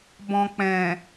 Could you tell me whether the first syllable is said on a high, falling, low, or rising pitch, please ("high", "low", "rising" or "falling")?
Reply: low